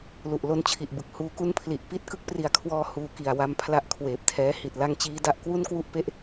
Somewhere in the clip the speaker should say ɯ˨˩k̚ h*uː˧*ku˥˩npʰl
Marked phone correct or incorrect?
correct